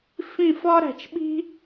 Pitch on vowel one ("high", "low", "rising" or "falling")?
falling